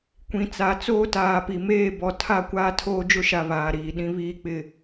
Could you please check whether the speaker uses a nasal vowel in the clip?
yes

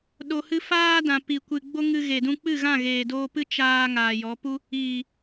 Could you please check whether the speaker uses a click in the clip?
no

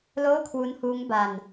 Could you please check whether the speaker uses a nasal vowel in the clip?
no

